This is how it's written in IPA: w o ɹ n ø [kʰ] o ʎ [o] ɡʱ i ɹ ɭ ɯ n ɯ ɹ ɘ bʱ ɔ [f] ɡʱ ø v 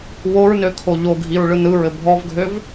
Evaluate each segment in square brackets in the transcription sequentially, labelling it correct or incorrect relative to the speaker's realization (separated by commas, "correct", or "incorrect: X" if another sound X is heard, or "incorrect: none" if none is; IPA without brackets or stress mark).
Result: correct, correct, incorrect: v